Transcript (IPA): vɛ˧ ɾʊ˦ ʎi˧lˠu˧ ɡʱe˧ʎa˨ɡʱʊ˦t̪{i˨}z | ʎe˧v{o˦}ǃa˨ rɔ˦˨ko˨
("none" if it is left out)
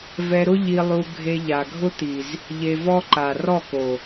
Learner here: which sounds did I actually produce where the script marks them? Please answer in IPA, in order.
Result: i˨, ɔ˦

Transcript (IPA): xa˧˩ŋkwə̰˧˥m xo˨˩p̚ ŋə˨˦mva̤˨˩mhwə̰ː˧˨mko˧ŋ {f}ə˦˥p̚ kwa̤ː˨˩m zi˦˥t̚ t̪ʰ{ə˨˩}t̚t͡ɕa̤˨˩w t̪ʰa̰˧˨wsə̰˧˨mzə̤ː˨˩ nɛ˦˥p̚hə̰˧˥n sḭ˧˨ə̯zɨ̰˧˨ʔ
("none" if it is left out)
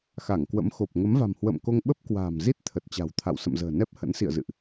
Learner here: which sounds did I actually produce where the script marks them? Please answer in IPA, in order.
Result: ɓ, ə˨˩

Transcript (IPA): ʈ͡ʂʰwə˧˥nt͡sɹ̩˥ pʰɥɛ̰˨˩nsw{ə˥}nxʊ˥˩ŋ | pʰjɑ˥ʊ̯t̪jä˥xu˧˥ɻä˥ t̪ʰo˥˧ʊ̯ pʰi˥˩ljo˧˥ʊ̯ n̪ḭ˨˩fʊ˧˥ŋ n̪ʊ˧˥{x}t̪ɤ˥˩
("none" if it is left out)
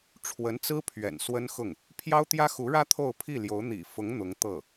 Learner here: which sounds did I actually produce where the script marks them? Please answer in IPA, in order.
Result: ə˥, ŋ

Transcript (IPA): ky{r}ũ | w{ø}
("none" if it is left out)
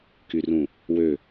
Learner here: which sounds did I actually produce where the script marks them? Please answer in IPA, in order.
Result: r, ø

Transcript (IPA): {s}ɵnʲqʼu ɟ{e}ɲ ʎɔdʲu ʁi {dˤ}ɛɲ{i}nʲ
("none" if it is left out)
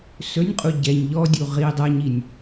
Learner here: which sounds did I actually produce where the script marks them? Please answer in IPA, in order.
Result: s, ɛ, dˤ, i

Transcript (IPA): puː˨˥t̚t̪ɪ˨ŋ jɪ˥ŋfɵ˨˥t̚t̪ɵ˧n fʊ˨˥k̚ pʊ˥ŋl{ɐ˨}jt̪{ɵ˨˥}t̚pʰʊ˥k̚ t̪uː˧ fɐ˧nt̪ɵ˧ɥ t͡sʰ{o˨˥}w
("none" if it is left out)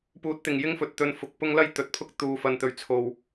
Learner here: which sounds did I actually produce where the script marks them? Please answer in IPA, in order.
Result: ɐ˥, ɵ˨˥, o˧

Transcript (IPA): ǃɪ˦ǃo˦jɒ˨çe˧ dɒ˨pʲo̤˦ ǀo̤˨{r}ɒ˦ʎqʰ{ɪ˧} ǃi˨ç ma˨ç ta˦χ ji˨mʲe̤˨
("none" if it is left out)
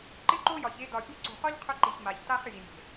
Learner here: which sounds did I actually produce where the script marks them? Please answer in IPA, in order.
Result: χ, ʏ˧

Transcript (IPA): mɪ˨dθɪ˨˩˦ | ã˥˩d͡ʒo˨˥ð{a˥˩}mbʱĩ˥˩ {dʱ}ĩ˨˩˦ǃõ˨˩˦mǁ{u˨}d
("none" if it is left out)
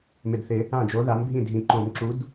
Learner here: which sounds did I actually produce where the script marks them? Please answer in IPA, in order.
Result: a˨˥, dʱ, u˨˥

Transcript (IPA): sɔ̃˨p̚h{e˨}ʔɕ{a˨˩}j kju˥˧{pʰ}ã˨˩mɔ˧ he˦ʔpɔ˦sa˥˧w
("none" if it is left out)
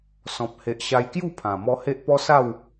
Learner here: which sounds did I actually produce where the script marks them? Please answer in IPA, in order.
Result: e˨, a˧, pʰ

